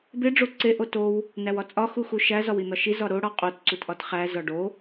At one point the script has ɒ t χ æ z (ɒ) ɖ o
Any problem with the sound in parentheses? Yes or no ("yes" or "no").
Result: no